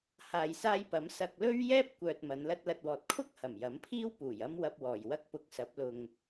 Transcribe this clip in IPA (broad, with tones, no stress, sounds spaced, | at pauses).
h aː˨ j s aː˧ j p ɐ˨˥ m s ɐ˧ k̚ l ɵ˥ ɥ j ɛː˥ p̚ kʷ œː˨ t̚ m ɐ˨˧ n l ɐ˧ t̚ l ɐ˨ t̚ w ɔː˨ t̚ kʰ ʊ˥ k̚ h ɐ˨˩ m j ɐ˨˥ m pʰ iː˥ w p uː˨˩ j ɐ˥ m w ɐ˧ p̚ w ɔː˨˩ j w ɐ˥ k̚ p ʊ˧ k̚ s ɐ˨˥ p̚ l ʊ˨ ŋ